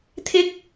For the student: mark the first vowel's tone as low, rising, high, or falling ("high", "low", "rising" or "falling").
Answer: rising